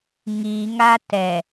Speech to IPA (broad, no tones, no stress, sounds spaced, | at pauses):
ŋ i ŋ a t ɛ